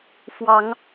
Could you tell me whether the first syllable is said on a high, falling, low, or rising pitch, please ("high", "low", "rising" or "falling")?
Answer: rising